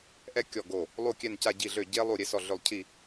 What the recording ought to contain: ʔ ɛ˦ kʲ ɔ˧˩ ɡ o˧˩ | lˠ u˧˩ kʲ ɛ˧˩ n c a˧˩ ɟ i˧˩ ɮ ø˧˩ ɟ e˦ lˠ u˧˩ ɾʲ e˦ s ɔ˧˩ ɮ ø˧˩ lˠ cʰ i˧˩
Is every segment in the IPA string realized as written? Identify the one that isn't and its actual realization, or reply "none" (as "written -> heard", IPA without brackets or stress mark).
none